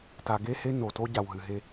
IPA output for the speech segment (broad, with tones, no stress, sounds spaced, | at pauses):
t a˨ ɡ e˦ h e˦ n o˨ t o˦ ɟ a˨ w ɦ ɨ˨ ɦ e˦